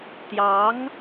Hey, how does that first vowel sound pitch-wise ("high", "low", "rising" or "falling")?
rising